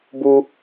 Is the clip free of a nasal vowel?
yes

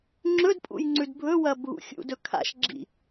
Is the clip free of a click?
no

